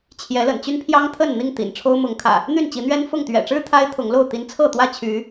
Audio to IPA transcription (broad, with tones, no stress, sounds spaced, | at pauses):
t͡ɕʰ j ɛ˨˦ l ə̰˨˩ n t͡ɕ y˦ n pʰ j ɑ˦ ŋ t̪ʰ ə˥˨ n n̪ i˥˨ ŋ t̪ ḭ˨˩ n ʈ͡ʂʰ o˦ ʊ̯ m ʊ˨˦ ŋ kʰ ä̰˨˩ | n̪ y˥˨ n t͡ɕ i˨˦ n̪ ɥ ɛ˦ n f ʊ˥˨ ŋ t̪ ɥ ɛ̰˨˩ ʈ͡ʂ ɻ̩˦ t̪ʰ a˦ ɪ̯ t̪ʰ ʊ˨˦ ŋ l o˥˨ ʊ̯ t̪ i˨˦ n t͡sʰ ɤ˥˨ t̪ w ä˥˨ t͡ɕʰ y˨˦